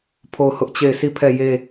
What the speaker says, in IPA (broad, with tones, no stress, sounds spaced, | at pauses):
pʰ o˦˨ ʊ̯ h ʊ˦ ʔ t͡ɕ e˦˨ ɪ̯ s i˦˨ pʰ ɛ˦˨ j e˦